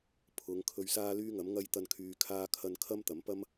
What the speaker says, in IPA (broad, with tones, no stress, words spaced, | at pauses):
pʰʊ˨˧ŋkʰɵ˧ɥsaː˥ lyː˥ŋɐ˨˥mŋɐ˥j t̪ɐ˥nkʰyː˧kʰaː˥kʰɐ˥n kʰɐ˥mt̪ɐ˨˥m pɐ˥m